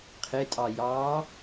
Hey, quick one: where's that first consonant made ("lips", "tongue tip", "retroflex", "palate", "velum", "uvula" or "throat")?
uvula